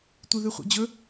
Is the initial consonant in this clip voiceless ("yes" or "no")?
yes